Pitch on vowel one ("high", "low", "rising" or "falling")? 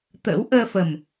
rising